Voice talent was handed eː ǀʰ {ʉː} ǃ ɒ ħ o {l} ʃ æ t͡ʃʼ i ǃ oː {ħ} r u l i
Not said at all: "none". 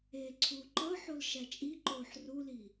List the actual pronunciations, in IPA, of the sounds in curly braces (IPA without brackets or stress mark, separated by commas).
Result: uː, l, ħ